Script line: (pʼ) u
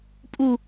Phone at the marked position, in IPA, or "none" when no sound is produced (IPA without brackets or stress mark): pʼ